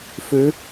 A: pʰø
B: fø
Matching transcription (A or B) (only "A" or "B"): B